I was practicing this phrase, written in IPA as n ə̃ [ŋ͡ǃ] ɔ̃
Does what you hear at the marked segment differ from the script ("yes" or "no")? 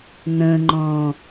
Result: no